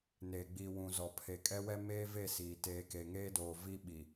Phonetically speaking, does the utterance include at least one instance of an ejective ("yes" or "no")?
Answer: yes